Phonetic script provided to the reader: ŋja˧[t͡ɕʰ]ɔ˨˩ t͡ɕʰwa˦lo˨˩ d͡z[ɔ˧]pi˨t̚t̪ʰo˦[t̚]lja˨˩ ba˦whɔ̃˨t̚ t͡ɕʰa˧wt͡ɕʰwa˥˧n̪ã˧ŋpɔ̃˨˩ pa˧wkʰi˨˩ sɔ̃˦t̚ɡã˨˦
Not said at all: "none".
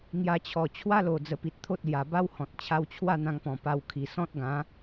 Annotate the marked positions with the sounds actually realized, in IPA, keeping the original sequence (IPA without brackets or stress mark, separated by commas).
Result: t͡ɕʰ, ə˧, t̚